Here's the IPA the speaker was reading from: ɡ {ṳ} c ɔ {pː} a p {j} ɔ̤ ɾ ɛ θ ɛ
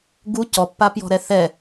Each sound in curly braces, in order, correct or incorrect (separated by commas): incorrect, correct, correct